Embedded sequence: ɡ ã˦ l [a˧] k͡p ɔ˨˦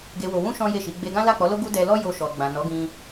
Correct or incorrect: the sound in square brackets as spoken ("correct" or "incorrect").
incorrect